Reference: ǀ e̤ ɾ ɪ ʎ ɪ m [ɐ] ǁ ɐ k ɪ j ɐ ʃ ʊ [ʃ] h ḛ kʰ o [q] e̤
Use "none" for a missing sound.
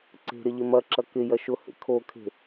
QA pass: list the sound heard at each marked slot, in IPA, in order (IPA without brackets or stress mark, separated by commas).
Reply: ɐ, none, kʰ